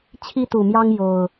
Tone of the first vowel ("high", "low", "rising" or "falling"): high